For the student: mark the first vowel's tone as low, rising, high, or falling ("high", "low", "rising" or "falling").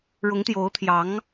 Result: rising